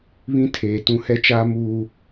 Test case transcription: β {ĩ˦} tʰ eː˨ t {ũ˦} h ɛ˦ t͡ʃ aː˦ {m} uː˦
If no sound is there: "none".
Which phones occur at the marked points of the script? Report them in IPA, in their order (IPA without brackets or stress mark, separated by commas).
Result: ĩ˦, ũ˦, m